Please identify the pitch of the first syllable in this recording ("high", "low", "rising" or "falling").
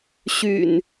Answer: low